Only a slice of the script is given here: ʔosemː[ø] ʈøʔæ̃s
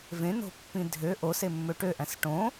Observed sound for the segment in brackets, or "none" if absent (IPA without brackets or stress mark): ø